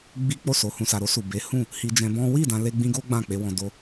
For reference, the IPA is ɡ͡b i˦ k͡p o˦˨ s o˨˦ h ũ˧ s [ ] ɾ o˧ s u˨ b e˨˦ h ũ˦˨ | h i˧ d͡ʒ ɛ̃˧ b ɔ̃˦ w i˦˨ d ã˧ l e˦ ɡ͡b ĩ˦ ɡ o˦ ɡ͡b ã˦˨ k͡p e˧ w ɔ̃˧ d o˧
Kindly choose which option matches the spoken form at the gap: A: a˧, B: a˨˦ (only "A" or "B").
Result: A